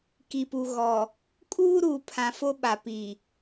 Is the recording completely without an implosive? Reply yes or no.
no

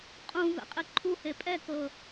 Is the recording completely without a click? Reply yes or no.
no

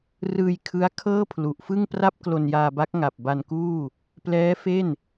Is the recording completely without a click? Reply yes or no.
yes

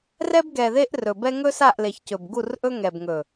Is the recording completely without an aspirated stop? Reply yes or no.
yes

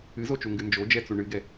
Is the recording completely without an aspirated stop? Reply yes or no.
yes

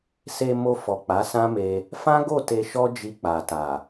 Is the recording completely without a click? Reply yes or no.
yes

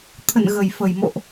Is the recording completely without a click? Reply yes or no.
yes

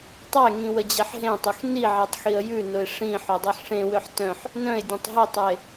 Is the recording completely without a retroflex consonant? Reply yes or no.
no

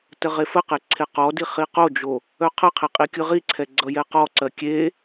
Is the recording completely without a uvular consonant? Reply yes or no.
no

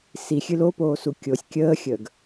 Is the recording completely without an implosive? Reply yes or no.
yes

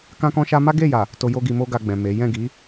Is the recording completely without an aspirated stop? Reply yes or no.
yes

